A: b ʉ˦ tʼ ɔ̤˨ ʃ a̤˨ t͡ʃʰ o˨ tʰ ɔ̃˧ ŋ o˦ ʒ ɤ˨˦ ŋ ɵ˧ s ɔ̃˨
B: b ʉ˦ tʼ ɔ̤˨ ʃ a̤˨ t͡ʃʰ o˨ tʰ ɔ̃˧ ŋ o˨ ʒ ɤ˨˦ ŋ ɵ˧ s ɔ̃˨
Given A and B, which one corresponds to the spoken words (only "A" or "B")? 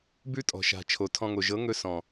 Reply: B